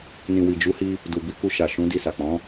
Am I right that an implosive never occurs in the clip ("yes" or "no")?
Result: yes